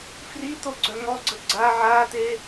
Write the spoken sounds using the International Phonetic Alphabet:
f r i t̪ o ɡ͡ǀ œ ŋ ɔ ɡ͡ǀ ə ɡ͡ǀ a ʕ a t̪ e

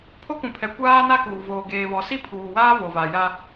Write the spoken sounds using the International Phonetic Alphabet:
pʰ o˦ k ũ˨ pʰ ɛ˨ kʷ aː˦ n a˦ k uː˨ v oː˨ ɡ eː˨ β ɔ˨ s i˦ pʰ uː˨ w aː˦ v o˨ v a˨ j a˦

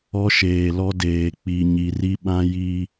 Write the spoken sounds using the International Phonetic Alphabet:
ɔ˦ ʃ eː˨ l ɔ˦ d eː˨ k͡p i˨ ɲ i˨ r i˦ ɓ ã˦ j i˦

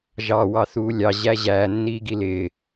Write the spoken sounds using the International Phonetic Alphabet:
ʒ ɑ w ɑ θ uː lʲ ɑ ʑ æ ʑ æː nː iː ɡ i l ɪː

